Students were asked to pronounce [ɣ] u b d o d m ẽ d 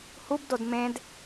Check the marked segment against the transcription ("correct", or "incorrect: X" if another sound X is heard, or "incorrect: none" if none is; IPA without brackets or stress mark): incorrect: h